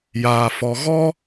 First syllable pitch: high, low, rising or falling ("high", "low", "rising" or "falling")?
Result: low